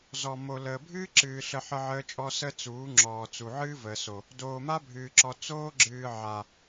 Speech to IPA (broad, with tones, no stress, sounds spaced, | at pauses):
z ɔ˨ m o˨ l əː˨ bʱ ɨː˦ ǁ ɨː˨ ɬ ə˦ ħ ə˦ ʕ əː˦ t͡ʃʼ ɔ˦ s ə˦ t͡s uː˨˦ ŋ͡ǁ ɔː˨ t͡s u˨ ʕ ɨː˦ v əː˨ s o˨ | d oː˨ m a˦ bʱ ɨː˨ ǁ ɔ˨ t͡s oː˦ ɡ͡ǁ ɨː˨ ʕ a˨